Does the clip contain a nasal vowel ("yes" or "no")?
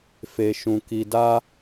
yes